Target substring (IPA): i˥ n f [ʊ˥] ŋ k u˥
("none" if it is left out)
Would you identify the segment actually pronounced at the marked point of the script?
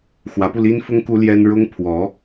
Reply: ʊ˥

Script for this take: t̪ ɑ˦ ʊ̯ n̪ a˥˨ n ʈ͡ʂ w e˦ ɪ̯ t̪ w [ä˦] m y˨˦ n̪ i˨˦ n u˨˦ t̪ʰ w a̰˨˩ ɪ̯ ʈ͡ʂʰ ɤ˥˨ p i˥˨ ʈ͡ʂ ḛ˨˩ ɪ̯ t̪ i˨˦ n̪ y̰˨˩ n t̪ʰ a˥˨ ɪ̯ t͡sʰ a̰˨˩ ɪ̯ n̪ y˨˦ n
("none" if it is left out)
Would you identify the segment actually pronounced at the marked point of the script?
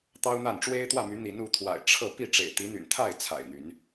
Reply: ä˥˨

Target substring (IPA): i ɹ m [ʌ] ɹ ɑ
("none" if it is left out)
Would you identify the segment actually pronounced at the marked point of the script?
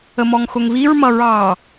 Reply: ʌ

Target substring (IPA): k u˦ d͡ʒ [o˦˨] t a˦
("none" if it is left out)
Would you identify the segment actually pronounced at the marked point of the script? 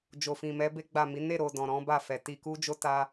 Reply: o˦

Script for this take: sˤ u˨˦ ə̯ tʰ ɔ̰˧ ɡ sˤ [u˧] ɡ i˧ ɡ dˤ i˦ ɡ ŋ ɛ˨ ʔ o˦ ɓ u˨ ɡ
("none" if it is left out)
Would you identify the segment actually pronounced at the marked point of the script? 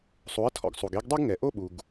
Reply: u˨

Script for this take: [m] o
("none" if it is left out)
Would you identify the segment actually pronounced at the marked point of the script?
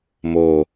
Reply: m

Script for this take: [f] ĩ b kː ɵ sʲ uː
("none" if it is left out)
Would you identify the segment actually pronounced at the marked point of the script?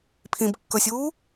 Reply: pʰ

